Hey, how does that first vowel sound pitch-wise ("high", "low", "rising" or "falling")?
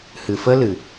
low